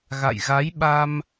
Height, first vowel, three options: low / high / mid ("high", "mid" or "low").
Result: low